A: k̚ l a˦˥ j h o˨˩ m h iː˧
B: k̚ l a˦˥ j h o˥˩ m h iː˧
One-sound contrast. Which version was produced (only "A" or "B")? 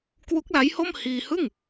B